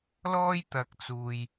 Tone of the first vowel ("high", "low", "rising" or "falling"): high